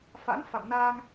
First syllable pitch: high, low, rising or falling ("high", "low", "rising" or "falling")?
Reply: rising